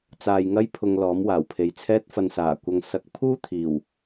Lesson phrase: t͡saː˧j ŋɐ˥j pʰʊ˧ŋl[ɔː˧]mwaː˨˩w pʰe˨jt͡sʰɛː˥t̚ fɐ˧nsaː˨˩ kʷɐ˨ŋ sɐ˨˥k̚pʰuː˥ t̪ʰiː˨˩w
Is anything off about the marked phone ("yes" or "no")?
yes